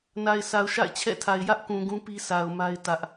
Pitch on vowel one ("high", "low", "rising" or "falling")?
low